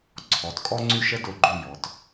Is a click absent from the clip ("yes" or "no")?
no